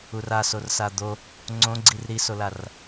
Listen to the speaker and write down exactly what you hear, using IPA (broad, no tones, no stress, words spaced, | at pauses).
ura sorsad̪o | ŋ͡ǀõ ɡ͡ǀirɾisolar